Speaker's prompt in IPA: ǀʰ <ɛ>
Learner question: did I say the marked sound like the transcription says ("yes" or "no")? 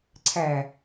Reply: no